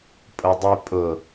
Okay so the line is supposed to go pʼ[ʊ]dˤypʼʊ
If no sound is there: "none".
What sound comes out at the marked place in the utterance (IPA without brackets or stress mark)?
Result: ʊ